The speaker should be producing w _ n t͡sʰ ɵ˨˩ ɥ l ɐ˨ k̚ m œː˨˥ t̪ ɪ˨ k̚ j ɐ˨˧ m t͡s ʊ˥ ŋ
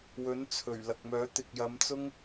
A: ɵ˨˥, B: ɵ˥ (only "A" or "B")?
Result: A